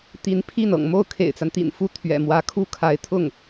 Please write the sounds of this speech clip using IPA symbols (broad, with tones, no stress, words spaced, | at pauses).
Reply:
t̪i˧˥npʰi˥˩n ɤ̰˨˩ŋmo˥˩ʊ̯ kʰḛ˨˩ɪ̯t͡sa˦n t̪ḭ˨˩nfu˥˩ t̪ʰɥɛ̰˨˩mwä˧˥ kʰu˥˩kʰa˧˥ɪ̯t̪ʰʊ˥˩ŋ